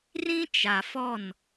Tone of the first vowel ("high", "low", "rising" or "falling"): high